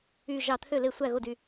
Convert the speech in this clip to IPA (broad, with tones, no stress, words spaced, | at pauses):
y˧˩ ʒɑ˧˩t̪ʰø˥˩le˧˩ sʷæ˥˩ɣo˥˩dy˧˩